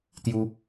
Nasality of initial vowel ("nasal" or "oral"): oral